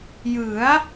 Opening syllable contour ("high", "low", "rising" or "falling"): rising